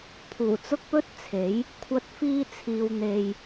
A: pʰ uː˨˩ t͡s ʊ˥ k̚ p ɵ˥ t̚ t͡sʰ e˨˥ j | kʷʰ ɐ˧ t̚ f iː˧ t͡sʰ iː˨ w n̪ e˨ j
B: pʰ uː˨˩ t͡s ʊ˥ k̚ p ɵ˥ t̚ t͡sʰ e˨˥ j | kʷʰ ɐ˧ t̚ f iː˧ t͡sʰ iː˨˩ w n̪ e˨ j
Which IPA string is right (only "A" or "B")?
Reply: A